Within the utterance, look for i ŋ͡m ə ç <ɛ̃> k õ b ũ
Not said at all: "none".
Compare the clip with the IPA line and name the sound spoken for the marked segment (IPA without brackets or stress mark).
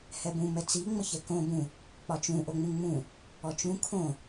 ɛ